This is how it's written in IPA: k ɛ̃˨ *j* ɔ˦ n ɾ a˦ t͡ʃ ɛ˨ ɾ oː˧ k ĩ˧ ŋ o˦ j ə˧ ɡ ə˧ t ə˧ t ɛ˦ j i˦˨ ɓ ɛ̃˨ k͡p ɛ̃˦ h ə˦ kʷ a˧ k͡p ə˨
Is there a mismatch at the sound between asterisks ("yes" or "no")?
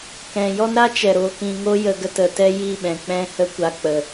no